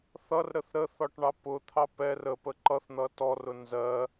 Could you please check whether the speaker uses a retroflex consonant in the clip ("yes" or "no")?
yes